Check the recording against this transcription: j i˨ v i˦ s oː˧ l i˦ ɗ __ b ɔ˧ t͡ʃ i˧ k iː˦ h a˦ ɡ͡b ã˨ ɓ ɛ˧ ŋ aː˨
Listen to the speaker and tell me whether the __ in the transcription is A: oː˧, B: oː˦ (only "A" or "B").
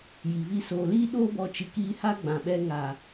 B